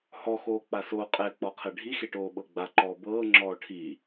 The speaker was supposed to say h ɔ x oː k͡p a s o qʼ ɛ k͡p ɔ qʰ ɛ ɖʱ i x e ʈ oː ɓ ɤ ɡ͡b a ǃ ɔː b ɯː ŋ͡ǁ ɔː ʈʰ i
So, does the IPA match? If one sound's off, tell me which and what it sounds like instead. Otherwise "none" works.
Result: ɯː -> ɤː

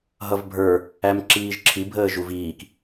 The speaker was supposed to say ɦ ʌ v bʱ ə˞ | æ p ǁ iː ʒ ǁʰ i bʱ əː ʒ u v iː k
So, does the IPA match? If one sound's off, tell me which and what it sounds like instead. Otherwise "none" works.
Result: p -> m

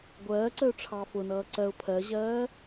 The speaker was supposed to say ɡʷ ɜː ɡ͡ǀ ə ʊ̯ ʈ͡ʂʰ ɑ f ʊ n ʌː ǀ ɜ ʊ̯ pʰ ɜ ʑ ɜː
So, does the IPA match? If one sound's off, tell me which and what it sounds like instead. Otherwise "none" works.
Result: ɡ͡ǀ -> ǀ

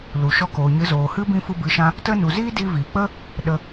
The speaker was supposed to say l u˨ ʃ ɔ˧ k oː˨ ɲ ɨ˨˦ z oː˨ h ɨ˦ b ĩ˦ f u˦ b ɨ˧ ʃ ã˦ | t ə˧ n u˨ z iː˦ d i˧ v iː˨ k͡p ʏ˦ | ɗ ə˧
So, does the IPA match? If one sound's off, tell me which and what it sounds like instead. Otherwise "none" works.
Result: ʏ˦ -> ə˦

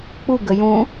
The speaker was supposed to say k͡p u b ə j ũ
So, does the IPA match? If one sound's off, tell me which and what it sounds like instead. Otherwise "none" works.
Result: b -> ɡ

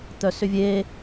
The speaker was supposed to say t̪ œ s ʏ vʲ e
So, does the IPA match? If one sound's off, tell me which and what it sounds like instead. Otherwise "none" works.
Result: none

